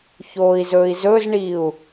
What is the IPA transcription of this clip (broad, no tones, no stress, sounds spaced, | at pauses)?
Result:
ç oː i̯ z ɵː i̯ z ɵ z ɳ iː u̯